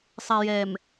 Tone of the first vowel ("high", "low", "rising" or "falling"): low